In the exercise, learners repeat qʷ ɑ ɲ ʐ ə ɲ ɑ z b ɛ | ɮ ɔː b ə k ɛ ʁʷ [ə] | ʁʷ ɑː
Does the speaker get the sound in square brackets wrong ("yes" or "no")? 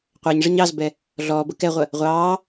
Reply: no